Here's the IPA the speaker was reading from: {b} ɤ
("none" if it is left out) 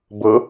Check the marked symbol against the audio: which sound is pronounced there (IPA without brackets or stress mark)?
b